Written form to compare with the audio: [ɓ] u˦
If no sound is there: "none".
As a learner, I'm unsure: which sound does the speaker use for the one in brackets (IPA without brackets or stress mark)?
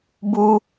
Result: b